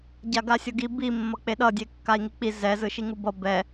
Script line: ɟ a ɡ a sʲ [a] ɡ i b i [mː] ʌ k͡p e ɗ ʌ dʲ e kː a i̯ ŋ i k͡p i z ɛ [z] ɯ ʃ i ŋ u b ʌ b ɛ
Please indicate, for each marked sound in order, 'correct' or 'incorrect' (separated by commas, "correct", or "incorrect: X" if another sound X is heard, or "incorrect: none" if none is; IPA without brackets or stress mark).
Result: incorrect: ʌ, correct, correct